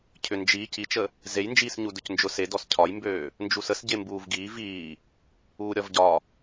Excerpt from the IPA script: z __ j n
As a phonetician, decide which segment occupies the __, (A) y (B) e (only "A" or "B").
B